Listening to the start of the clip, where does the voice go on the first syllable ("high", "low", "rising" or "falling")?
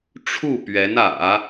falling